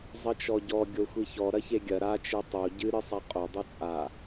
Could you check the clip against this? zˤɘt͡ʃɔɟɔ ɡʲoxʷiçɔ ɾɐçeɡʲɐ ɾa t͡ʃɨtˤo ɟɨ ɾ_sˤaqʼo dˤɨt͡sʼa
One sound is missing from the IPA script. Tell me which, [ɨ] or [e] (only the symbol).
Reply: ɨ